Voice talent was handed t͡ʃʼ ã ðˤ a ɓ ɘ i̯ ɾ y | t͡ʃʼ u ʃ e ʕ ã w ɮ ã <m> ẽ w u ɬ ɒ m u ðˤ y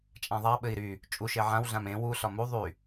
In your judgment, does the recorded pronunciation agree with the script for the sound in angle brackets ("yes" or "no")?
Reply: yes